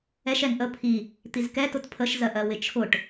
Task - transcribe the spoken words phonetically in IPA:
ɛʃ ɛŋ ʔə pʰi | t̪izkɛ tʊtpʰəʃ zɜʔɜwɪt͡ʃʰʊʈ

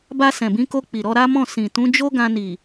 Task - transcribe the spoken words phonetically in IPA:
ba˧sɛ̃˨bĩ˨˦ko˧ k͡pi˨ɾɔ˧ɾa˦mɔ̃˦˨ sĩ˨ tũ˨˦d͡ʒo˦ɡã˧ni˨

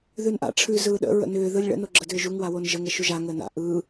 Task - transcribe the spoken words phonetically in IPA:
ðʉnʔa̰ ʈ͡ʂʰʉ zɯːɗə̰ ɹə̰nʏː ðɯlʲɭə̰ noɡ͡ǁədʏːʒuŋ wawonʒəŋ əʃuʒa ŋəːna̰ ʔɯː

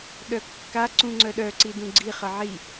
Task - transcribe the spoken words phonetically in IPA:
ɗœkːa ǀũŋ͡ǀœɗœ ǀidũɡ͡ǀi χəʕi

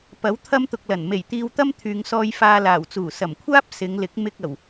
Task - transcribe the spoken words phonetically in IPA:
pɐ˨˥w t̪ʰɐ˥mt̪ʊ˧k̚lɐ˨˩n me˨˩jt̪iː˧wt̪ɐ˥m t̪ʰyː˨ŋsɔː˧j faː˧laː˨˩w t͡suː˨˩sɐ˨˩mkʷʰaː˥p̚ sɪ˨˧ŋ lɪ˨˥k̚ mɪ˧k̚ɐ˨˩w

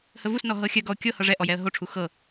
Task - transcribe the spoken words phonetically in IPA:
həvusnɔ ɦɤxʲœɡɔʊ̯ kʲɤ hɤʐɛʔɔ jɛə̯ɦoʈ͡ʂʰu xɤ

